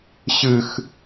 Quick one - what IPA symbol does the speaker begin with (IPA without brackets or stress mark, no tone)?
ɕ